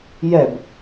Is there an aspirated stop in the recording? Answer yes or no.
no